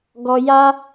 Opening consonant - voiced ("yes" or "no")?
yes